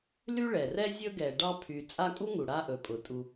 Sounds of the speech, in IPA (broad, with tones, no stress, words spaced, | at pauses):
ly˥ɭɛ˩rɛ˥ zʲɵ˥ɡɛ˨ ɖɑ˦pʰy˨ t͡sʼa˦kʼu˥ŋu˩ ɽa˥ʔɵ˩pʼʊ˩ tʼu˨